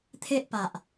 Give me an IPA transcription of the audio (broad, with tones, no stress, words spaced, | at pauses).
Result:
t̪ʰe˦ʔpa˨ʔ